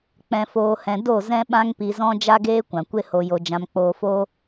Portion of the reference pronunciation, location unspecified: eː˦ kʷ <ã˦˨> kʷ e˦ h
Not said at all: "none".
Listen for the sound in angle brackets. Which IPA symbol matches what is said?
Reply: ã˨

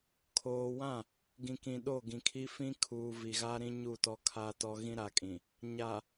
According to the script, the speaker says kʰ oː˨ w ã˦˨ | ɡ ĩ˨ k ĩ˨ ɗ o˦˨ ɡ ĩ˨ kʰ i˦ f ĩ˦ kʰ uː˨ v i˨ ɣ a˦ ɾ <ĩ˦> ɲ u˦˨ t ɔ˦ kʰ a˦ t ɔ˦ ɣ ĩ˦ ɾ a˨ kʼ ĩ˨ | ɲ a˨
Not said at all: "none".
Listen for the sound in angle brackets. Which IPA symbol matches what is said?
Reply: ĩ˦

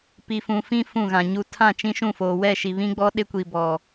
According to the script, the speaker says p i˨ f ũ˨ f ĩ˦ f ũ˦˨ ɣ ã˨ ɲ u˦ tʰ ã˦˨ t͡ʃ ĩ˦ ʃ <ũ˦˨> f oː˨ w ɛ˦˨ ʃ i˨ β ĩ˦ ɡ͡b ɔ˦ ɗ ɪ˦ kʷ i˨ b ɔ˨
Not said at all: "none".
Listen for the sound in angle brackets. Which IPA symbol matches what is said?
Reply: ũ˦˨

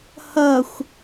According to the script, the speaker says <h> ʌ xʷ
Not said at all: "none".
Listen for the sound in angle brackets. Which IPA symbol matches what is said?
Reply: h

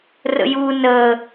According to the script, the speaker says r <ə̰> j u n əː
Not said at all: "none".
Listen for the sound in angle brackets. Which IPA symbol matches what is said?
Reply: ə̰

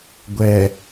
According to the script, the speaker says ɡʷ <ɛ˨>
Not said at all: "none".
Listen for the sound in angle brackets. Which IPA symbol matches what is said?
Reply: ɛ˨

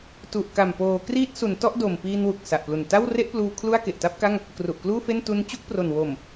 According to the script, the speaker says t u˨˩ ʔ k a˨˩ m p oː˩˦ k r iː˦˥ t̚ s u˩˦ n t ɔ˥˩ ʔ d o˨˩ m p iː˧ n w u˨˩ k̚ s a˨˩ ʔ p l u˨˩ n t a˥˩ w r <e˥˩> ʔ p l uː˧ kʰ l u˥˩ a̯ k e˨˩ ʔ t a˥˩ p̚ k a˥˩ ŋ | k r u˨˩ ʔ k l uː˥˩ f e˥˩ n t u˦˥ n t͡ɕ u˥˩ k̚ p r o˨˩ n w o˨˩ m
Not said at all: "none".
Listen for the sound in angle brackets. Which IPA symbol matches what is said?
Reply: e˥˩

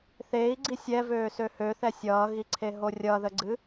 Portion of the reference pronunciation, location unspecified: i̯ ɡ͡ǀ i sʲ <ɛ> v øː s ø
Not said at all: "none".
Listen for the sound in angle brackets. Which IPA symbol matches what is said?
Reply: ɛ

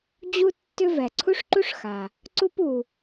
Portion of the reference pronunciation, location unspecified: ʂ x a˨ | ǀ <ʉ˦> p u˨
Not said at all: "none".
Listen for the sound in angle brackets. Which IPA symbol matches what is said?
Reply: u˦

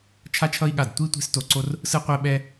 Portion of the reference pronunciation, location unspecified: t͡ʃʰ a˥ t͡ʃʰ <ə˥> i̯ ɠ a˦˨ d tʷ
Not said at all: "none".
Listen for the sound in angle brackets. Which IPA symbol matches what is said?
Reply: ʌ˥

